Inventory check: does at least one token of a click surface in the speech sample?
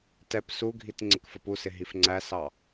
yes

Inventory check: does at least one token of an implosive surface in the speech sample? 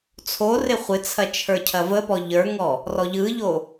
no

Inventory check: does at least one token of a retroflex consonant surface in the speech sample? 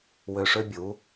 yes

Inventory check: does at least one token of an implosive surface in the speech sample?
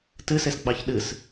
yes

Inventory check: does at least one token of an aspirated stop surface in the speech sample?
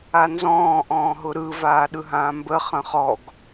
no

